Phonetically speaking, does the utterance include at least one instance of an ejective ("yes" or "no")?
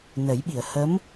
no